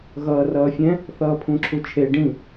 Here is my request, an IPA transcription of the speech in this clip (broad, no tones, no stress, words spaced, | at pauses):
ɣʌːrʌːfʲɛ̃ | θʌːpʰũǁʰut͡ʃʰe ɖĩ